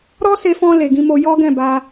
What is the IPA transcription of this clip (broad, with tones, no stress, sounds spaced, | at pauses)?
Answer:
ɾ ɔ˦ s e˧ f ɔ̃˧ l e˨ ɡ ĩ˧ m o˧ j ɔ˦ ɡ ɛ̃˦˨ b a˧